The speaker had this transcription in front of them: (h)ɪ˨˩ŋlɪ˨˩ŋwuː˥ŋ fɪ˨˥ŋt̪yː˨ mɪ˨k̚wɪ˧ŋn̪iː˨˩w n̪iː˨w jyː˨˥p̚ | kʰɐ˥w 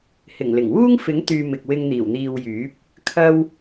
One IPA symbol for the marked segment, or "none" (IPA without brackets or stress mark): h